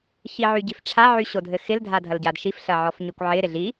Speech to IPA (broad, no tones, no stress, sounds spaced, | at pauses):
ç i ʕ y ɟ i f ʈ͡ʂʰ a ʕ y ɕ o dʱ ɘ x ɪ l dʱ a dʱ ɐ l ɟ a d ʃ i f ɬ ɐ ʕ ɔ f ɲ y kʷ ʕ ɪ ɾ ɪ ɮ i